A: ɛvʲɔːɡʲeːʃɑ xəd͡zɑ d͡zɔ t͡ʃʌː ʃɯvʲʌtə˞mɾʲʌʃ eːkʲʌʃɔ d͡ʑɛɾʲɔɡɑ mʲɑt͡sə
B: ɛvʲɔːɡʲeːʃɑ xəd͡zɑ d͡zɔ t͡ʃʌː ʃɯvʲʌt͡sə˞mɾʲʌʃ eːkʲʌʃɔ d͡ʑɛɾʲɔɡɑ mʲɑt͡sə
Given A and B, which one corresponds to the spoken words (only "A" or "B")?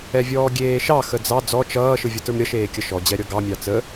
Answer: A